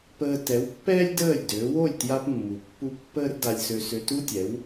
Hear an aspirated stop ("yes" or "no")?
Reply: no